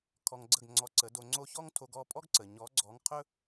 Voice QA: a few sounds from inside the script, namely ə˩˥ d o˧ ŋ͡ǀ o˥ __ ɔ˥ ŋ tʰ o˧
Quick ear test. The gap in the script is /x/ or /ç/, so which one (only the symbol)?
ç